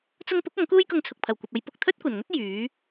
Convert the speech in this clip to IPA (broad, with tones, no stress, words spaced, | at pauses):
t͡sʊ˧ŋpʊ˨˥k̚ ɐ˨˥ŋkuː˥jkʊ˧ŋt͡sʰʊ˨k̚ pʰɐ˨˩wkʷɐ˨p̚ɐ˨˧j pʊ˧k̚ t̪ʰɵ˥t̚kʷɐ˨˩nŋɵ˥t̚ jyː˨˥